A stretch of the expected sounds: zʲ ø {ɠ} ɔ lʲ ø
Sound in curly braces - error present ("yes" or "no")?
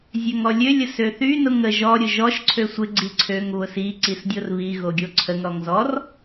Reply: yes